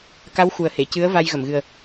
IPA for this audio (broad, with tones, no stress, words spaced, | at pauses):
ka˧˥w xu˨˩ə̯he˨˩˨ cɨ˧˥ə̯ va˧j ɣə˨˩˨mɣɨ˨˩ə̯